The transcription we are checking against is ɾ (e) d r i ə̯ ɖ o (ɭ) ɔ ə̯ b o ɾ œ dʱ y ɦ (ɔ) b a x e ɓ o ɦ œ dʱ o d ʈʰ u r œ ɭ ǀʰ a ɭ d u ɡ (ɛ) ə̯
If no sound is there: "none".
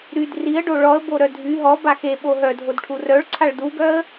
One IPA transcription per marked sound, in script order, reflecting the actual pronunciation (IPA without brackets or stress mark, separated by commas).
y, ɭ, ɔ, œ